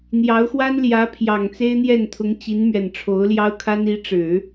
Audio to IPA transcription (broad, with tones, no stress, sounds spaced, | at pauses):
n̪ j ɑ˧˥ ʊ̯ x w a˥ n l j ä˧˥ pʰ j ɑ˨˩ ŋ t͡s e˥ ɪ̯ n̪ j ɛ˥˩ n t̪ʰ ʊ˧˥ ŋ t͡ɕ i˧˥ n m ɥ ɛ˨˩ n ʈ͡ʂʰ o˧˥ ʊ̯ l j ɑ˥ ʊ̯ kʰ a˥ n i˧˥ ʈ͡ʂ ɻ̩˨˩˦